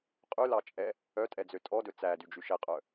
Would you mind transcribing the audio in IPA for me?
qʼʉlɑt͡ʃʼɛ | œtʼɛd͡zø tʼɔdɵ t͡sædyd͡ʒy ʃɛqʼœ

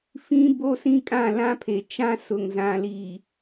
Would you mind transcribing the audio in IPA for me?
fĩ˦bo˦sĩ˦kʼã˦˨ lã˦pʰe˨ t͡ʃã˦sʊ˨ŋ zã˨li˨

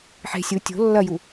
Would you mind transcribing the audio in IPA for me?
ħe̤ sʲu tʲo̤ lːɐju

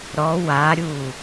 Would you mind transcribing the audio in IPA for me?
ɾɔ waɾʲu

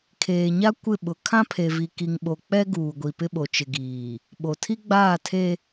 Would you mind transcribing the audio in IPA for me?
kʰeː˨ɲa˦ kʷɪ˦˨ɓʊ˨ kʰã˦pʰe˨vi˨ ki˨ŋɓo˨k͡pɛ˦ ɡuː˨ɡʷi˨pɪ˦ɓo˨ t͡ʃɪ˨ɡiː˨ | ɓo˨tʰi˦ɡ͡baː˦˨tʰe˦

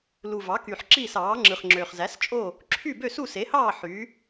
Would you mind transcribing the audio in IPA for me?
lu˨˩ vɑ˩˥ky˨˩ħ ǁiː˥˨sɑː˩˥ŋ͡ǁɯ˨˩χŋ͡ǁø˨˩χ zæ˩˥st͡ʃʼo˥˨ | ǁʰy˥˨ bø˥˨su˥˨se˩˥hɑː˥˨ ħy˩˥

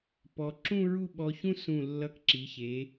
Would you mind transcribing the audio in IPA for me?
pɔ˩˧ ǁũ˥˧ɹu˥˧ɓɔ˧çũ˥ sũ˧˩lːʌ˧kǁi˩˧ çe˩˧

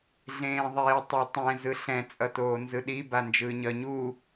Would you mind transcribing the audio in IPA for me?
ɮẽːðˤeːtˤetˤɛ̃ zɯɬɛ̃ t͡sʼʌtoːnzɯɗi band͡ʒɯːɲʌ ɲu

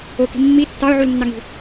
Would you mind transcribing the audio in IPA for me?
oki̤ mːi tːɑʊ̯ʕulnːɑŋi̤

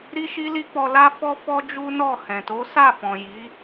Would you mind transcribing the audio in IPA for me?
ɾi˦ʃi˦li˦k͡pɔ˧ la˦fɔ˦ fɔ˦d͡ʒu˦nɔ˦˨ hɛ̃˨to˨˦ sa˦˨fɔ̃˨ ji˨˦

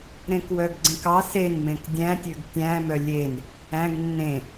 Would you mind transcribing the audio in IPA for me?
ɾẽkwœɡɡ͡ǀẽkɑ senmẽk dʲæ̃tʲøɡ tʲæ̃mœ lʲen | æ̃ɡ nːẽ

